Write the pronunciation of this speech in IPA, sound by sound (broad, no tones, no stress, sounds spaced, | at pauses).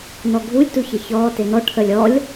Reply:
n ɔ ɡʱ u lʲ t u ç ə ç ɔː t e n ɔ ʈʰ əː lʲ ɔ lʲ